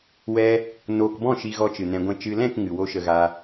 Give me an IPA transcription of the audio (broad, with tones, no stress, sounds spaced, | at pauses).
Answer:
w ɛ˧ | n oː˨ k b ɔ̃˦˨ ʃ i˨ ɣ ɔ˨ t͡ʃ ɨ˨ n ɛ̃˧ ɡʷ ɛ̃˦˨ t͡ʃ ɨ˨ l ɛ̃˦˨ k ŋ ɨ˨ w o˧ ʃ ə˨ ɣ a˧